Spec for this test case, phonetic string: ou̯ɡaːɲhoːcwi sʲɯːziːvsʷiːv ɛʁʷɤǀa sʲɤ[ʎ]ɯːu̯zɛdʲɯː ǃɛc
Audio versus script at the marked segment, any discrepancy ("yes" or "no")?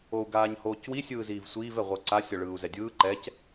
yes